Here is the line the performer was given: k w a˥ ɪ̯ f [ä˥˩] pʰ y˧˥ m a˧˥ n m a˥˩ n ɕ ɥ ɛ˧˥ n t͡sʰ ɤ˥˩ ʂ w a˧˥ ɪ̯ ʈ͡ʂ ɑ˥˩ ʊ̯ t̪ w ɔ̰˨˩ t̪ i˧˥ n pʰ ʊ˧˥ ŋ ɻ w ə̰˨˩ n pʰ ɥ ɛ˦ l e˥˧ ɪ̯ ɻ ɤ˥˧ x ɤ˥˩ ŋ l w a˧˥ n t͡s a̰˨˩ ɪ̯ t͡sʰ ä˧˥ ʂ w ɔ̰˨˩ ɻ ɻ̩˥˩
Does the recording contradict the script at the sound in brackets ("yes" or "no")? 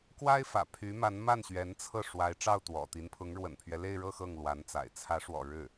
yes